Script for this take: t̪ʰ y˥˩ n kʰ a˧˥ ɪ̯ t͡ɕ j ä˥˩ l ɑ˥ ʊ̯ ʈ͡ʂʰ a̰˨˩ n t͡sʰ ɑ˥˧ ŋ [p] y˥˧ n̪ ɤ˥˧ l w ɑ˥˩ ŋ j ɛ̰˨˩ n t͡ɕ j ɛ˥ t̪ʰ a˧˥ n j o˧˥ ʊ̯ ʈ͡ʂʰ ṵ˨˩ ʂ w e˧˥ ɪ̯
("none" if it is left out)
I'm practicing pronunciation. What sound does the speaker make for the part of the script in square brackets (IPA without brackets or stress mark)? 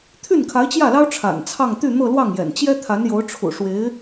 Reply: t̪